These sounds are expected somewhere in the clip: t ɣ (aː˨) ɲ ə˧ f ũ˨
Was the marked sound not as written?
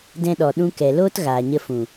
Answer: no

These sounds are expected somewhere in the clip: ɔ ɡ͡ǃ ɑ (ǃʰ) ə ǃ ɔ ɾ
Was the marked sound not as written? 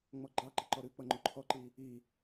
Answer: yes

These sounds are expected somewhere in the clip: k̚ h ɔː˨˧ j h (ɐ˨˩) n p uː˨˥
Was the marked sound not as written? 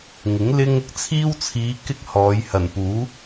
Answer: no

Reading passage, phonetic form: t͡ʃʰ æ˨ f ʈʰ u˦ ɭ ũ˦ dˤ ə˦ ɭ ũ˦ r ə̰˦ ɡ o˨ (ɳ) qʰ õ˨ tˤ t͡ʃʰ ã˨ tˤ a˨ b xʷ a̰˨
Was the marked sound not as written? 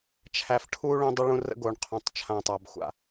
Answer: no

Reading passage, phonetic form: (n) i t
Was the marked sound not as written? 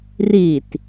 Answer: yes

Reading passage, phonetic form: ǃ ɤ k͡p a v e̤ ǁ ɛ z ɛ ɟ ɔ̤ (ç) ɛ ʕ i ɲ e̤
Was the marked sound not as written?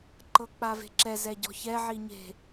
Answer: no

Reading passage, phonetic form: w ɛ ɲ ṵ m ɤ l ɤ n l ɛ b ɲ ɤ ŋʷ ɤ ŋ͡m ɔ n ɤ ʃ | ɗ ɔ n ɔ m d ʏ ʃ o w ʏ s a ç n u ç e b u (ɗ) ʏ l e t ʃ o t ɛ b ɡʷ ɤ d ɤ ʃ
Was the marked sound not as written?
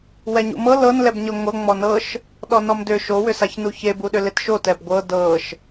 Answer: no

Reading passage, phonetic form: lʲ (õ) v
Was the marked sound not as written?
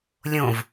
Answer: no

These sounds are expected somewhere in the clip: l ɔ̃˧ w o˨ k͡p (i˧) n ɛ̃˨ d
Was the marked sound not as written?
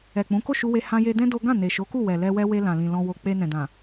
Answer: yes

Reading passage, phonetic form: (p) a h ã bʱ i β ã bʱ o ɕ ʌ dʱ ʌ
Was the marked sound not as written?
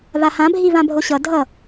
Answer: yes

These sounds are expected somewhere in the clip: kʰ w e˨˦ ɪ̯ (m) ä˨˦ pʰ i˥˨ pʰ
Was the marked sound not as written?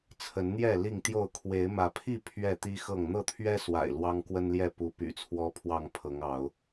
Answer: no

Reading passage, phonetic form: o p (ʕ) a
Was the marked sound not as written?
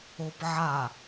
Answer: no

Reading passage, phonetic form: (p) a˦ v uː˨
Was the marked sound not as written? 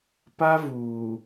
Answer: no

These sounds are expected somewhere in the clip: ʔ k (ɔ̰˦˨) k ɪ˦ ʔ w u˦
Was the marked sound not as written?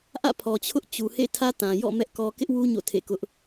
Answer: yes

